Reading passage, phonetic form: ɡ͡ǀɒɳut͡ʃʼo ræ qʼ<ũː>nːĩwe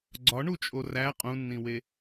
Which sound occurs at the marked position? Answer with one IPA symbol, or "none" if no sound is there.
ũ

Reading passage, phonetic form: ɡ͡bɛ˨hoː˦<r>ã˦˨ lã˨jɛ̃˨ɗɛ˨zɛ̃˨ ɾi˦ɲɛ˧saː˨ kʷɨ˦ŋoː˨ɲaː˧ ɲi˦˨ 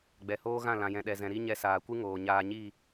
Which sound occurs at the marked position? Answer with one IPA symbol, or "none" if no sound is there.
ɣ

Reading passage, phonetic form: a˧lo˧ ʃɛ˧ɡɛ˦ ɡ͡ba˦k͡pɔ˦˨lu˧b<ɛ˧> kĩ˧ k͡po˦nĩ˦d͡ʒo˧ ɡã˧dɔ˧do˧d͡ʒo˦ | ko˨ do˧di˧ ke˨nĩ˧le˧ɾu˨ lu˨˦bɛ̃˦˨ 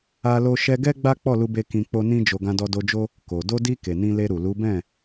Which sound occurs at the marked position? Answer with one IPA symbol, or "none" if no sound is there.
e˧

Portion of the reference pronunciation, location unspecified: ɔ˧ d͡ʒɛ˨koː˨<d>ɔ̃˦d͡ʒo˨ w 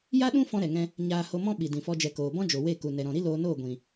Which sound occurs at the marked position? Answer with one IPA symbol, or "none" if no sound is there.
b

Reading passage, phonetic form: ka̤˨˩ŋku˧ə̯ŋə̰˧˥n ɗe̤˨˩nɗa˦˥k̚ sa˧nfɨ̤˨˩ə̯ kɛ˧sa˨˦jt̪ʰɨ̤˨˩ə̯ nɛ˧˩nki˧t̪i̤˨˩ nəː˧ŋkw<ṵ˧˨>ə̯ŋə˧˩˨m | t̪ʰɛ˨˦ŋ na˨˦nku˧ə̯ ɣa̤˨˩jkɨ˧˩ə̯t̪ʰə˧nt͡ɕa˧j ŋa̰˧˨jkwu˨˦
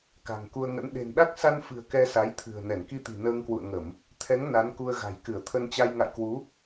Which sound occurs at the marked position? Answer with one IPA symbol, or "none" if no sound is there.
ṵ˧˨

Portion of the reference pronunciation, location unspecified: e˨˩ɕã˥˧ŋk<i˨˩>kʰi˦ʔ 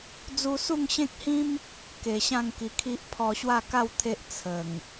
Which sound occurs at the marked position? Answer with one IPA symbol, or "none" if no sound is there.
i˨˩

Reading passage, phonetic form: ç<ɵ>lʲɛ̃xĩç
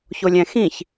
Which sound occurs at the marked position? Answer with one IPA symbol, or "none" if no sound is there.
o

